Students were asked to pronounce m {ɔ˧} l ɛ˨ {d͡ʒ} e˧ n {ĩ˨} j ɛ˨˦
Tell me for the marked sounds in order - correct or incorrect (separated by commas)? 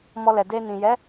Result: correct, incorrect, correct